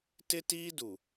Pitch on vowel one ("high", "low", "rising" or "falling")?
high